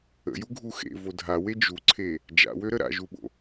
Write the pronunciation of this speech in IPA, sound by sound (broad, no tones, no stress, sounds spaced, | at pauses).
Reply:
ə̰ j u ɡʱ u x ḛ v o dʱ a w e d͡ʒ u ǀʰ e | d͡ʒ a̰ w ø ɾ ə ɾ a̰ ʒ u ɓ o̰